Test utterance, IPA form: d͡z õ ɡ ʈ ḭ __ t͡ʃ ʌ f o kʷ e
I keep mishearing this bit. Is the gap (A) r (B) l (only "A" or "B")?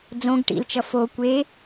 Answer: B